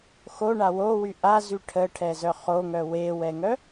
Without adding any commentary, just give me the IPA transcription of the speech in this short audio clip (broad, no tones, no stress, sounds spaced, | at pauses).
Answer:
x o ɳ a w o w y ʔ a z y ʈʰ ə ʈʰ ɛ z œ χ o ŋ œ w e w ɛ ŋ œ